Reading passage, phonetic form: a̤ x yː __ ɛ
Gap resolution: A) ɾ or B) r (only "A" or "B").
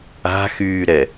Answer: A